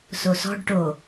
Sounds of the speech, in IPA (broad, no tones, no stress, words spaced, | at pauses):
sosɔ̤ɖ ʈo